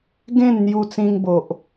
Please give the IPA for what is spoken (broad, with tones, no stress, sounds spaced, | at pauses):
ɡ ẽ˥˧ n n̪ j u˧ t͡s ĩ˧ ŋ b o˨ ʔ